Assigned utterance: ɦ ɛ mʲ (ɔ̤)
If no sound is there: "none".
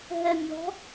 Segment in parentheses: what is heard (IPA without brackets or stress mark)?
ɔ̤